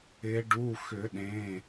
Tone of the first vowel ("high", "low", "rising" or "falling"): rising